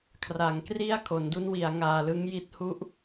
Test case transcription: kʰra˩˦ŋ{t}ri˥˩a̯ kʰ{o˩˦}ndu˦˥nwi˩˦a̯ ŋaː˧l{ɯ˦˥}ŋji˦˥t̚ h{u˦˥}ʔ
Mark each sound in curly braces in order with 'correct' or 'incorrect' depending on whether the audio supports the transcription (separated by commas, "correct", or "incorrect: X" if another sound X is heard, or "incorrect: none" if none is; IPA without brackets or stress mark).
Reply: incorrect: k, correct, correct, correct